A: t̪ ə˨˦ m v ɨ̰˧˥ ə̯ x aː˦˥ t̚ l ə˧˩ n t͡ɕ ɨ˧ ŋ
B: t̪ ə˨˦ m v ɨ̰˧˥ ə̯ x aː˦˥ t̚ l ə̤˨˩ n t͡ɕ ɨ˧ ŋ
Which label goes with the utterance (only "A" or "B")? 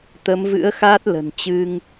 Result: B